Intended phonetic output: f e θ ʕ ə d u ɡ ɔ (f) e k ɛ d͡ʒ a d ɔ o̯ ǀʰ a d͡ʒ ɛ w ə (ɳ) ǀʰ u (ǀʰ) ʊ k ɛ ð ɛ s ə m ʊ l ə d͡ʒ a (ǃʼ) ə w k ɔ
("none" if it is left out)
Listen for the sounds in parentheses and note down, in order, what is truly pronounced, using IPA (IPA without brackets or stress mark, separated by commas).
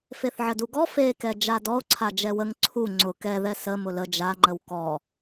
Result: f, ŋ, ŋ͡ǀ, ŋ͡ǃ